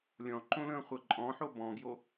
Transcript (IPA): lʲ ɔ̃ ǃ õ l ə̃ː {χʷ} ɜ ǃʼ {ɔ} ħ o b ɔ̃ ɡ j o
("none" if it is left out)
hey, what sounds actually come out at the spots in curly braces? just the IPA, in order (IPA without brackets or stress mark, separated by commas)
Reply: χʷ, ɔ̃